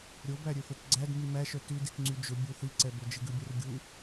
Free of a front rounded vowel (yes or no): no